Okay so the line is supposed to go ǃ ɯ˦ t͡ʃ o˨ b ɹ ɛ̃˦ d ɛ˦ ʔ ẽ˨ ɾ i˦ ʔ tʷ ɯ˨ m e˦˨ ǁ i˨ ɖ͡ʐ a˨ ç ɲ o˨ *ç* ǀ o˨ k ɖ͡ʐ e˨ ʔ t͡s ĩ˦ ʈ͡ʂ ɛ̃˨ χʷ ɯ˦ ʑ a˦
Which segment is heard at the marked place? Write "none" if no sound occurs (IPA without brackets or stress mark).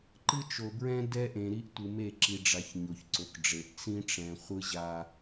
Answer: ç